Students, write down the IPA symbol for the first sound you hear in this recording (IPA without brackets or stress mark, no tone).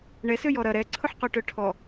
ɳ